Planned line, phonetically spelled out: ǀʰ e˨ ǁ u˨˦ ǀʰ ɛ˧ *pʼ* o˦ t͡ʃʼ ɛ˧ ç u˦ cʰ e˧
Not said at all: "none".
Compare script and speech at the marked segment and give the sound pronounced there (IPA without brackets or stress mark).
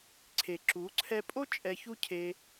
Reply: pʼ